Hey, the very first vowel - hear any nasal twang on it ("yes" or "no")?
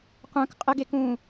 yes